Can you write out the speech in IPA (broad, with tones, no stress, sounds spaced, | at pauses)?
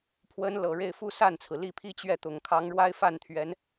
pʰ w ə˥ n l ɤ˨˩ ɻ e˥˩ ɪ̯ f u˥ s a˥˩ n t͡sʰ ɹ̩˩ l i˥˩ pʰ i˥ t͡ɕ ɥ ɛ˥˩ t̪ ʊ˨˩ ŋ kʰ ɑ˧˥ ŋ ɻ w a˥ ɪ̯ f a˥˩ n t̪ʰ ɥ ɛ˧˥ n